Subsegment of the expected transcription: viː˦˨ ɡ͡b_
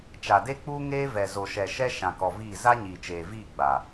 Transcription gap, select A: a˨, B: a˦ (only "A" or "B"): A